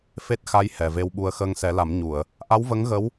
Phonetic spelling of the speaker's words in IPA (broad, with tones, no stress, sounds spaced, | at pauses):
f e˦˥ t̚ x a˧˥ j h ɛ˨˩ v e˧ w ɓ u˧ ə̯ x əː˧ ŋ s ɛ˨˩˦ l a˨˩˦ m ɲ u˨˩˨ ə̯ | ʔ a˧˥ w v ə˧˥ ŋ ɣ ə˧˥ w